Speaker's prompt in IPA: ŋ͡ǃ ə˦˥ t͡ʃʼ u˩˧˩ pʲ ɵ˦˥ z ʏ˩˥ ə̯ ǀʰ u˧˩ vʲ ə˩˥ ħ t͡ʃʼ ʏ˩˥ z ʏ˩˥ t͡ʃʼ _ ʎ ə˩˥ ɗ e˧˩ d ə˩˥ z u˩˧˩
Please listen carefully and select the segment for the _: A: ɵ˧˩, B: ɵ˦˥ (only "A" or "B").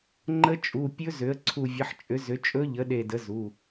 B